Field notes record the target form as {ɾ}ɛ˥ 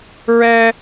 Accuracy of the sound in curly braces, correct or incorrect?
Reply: incorrect: ɹ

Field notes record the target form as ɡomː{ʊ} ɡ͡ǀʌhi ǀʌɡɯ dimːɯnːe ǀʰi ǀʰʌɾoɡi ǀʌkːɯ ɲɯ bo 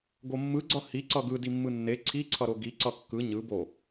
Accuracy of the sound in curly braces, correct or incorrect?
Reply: incorrect: ɯ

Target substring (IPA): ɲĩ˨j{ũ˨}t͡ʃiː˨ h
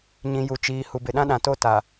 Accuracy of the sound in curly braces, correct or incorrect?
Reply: incorrect: u˨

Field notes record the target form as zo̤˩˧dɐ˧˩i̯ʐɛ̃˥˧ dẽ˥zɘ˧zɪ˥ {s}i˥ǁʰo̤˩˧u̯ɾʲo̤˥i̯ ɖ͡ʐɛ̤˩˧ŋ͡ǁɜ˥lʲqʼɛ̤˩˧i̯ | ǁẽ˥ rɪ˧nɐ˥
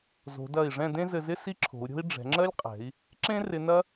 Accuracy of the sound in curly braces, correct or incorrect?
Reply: correct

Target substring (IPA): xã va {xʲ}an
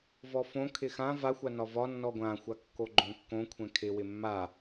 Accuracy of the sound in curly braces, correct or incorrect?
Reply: incorrect: xʷ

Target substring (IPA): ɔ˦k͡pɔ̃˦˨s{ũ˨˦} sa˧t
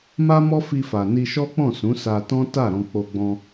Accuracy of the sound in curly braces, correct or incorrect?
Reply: correct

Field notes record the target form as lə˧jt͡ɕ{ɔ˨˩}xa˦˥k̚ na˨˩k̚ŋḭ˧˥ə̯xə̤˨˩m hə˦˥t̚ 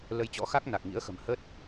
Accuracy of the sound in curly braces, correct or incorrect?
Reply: incorrect: ɔ̰˧˥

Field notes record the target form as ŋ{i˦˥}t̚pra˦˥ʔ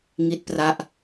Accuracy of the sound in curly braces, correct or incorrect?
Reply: correct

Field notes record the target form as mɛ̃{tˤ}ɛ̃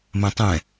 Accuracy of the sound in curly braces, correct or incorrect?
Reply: correct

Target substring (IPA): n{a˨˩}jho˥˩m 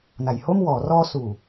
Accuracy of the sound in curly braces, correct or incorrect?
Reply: incorrect: a˩˦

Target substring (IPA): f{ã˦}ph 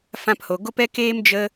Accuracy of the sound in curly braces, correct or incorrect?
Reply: correct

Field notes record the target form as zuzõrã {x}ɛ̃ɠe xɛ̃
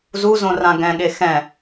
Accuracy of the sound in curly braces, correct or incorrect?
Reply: incorrect: ɡ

